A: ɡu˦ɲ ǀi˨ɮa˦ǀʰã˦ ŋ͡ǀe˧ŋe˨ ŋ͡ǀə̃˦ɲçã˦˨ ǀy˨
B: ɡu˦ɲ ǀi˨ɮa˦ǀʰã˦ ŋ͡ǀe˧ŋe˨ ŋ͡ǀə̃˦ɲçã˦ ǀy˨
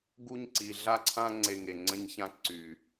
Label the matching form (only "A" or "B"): B